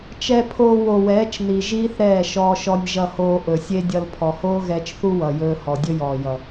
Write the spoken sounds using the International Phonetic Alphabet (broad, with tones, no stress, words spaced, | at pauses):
t͡ʃɛ˧pʰoː˧wo˨wɛː˨˦t͡ʃ ni˨ʒiː˦θ ɾɛː˦˨ʃɔː˧ʃɔ˧nʲ ʒʌ˧hoː˧ ʔɵ˨sʲe˦dʲʌ˧l pʰɔ˨hoː˦ɣɛː˧t͡ʃθu˦ wʌ˨jɵː˧hɔ˨ dʲɵ˦jɔː˨jʌ˨